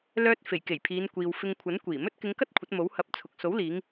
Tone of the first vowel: high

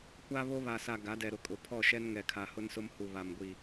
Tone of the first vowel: high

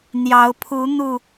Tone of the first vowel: rising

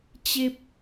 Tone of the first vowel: high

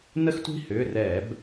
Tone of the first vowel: high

